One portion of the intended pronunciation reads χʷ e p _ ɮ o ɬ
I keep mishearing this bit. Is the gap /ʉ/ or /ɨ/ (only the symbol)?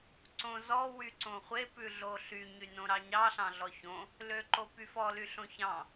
ʉ